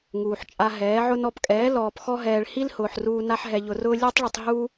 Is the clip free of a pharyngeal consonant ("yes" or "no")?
no